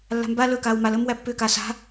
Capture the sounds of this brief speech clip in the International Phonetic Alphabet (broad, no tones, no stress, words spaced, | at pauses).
lːa̤mba lɵkaːw maləːm wæpːʏːkaːs a̤